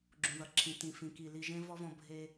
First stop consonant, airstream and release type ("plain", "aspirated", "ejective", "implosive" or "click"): click